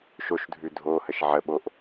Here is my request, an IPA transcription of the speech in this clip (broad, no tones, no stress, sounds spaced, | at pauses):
ʃ o ʃ dʱ ʉ dʱ o h ə ʃ ʕ ə ɓ o ʔ